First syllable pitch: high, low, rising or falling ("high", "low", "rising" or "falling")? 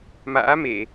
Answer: rising